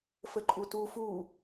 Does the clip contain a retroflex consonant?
no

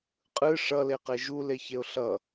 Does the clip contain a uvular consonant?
yes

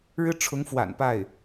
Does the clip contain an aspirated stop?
yes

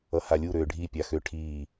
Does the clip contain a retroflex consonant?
yes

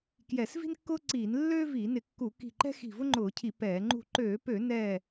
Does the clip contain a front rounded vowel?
yes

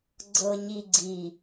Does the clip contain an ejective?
no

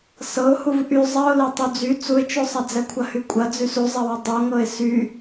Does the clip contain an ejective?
yes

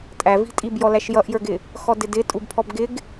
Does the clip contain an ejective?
yes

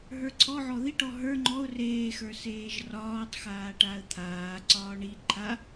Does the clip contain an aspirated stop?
yes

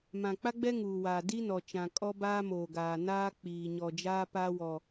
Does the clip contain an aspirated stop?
no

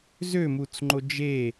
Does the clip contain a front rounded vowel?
yes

